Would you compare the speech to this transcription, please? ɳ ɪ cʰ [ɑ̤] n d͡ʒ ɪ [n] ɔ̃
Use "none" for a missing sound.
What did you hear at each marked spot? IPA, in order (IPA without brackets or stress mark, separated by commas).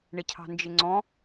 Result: ɑ̤, ŋ͡ǀ